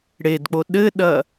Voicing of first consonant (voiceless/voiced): voiced